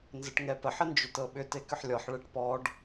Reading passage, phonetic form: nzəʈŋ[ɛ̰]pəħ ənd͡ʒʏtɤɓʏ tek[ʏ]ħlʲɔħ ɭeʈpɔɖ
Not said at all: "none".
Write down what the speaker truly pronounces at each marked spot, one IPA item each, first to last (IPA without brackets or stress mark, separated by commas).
ɛ, ʏ